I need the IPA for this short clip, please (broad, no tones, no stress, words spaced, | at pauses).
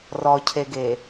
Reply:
rɔcʰeɡe